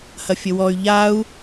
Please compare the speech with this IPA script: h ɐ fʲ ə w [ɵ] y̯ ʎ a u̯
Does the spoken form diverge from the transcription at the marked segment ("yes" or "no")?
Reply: yes